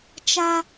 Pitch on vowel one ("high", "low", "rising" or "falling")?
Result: high